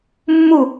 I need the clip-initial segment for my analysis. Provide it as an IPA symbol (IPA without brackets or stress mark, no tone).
mː